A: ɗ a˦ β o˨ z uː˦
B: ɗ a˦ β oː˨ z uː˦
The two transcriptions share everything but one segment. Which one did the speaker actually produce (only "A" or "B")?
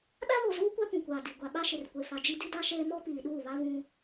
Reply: A